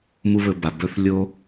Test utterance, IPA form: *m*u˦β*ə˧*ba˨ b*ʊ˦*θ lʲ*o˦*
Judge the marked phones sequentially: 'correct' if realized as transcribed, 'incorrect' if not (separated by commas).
correct, incorrect, incorrect, correct